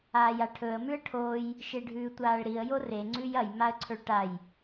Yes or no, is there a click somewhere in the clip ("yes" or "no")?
yes